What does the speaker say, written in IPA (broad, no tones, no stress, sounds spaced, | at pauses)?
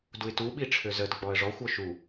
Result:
d u ɪ̯ t u ɓ i ʈ͡ʂʰ ø z ə d ɡ͡b ɔ ə̯ ʐ ɔ xʷ ɔ ʃ u